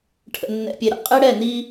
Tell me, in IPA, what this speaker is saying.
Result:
ʈʰ ə̰˨ nː ɛ̰˨ pʲ e˨ ɾ ə̰˨ qʼ e˦ ɽ ɛ˦˨ n i˦

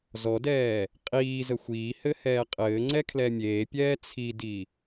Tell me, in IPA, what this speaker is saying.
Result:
z ɔ d ɛː | qʼ iː z ə xʷ iː h ɘ h ɛː qʼ ɘː ŋ͡ǀ ɛ kʰ l ɛ mʲ eː pʲ ɛː t͡sʰ i d i

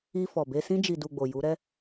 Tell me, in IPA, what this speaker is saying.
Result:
i˧ f ɔ˨ b e˧ s ĩ˧ d͡ʒ i˨ d u˨ ɡ͡b o˨ j u˨˦ ɾ ɛ˦

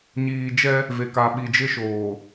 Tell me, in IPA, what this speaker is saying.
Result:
ɲ iː˨ d͡ʒ ɛ˦ | v e˨ k a˨ ɓ i˨ d͡ʒ ɪ˦ ʃ oː˨

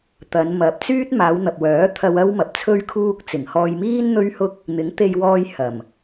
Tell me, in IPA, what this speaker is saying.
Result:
t̪ ɐ˨˧ n m ɐ˨ p̚ t͡s yː˥ t̚ m aː˨˧ w n̪ ɐ˨ p̚ w œː˨˥ t̪ʰ ɐ˧ w ɐ˥ w m ɐ˨ p̚ t͡sʰ ɵ˥ ɥ kʰ uː˥ k̚ t͡s ɪ˨˩ ŋ h ɔː˧ j m iː˥ n n̪ ɵ˥ ɥ h ʊ˥ k̚ | n̪ ɪ˨˥ ŋ t̪ e˧ j w ɔː˧ j h ɐ˨˩ m

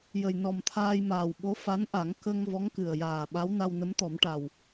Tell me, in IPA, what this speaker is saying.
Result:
j ə˨˩ j n ɔ˨˩ m t̪ʰ aː˧ j m aː˨˩ w ɓ o˧˥ f a˧˥ n ʔ a˨˩˦ ŋ k ə˧ ŋ v ɔ˧˥ ŋ k ɨ˨˩ ə̯ j aː˨˩ ɓ a˧˥ w n a˧ w n ə˧˥ m t̪ ɔ˨˩˦ m ʈ a˨˩ w

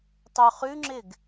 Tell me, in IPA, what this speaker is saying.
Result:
tˤ ʉ χ ʉ ŋ͡ǁ ɪ ɡ

